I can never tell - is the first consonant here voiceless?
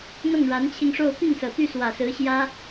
no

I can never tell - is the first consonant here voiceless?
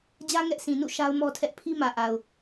no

